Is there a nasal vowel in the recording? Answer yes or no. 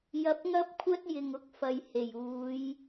no